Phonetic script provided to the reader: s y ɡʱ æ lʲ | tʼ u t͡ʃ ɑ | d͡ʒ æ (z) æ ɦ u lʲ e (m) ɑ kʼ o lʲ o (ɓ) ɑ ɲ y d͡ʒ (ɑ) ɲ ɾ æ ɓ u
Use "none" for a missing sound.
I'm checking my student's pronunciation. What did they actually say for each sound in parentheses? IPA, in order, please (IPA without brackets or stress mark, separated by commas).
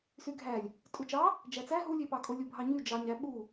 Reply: t͡s, p, bʱ, ɑ